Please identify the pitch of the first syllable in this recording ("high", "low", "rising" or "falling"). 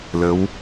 rising